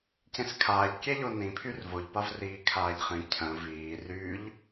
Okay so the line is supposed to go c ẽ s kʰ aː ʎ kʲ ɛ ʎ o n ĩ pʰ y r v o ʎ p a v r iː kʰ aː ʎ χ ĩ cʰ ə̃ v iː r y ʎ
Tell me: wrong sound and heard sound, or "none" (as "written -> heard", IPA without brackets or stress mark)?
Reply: none